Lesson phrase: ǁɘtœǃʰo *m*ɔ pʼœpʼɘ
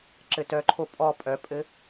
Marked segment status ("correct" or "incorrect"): incorrect